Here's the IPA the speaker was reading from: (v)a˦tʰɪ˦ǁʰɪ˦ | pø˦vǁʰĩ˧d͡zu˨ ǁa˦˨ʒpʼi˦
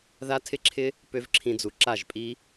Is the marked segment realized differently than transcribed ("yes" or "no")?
yes